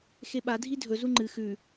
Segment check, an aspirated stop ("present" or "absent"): absent